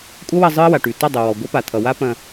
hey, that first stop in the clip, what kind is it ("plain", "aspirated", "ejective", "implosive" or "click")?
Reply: ejective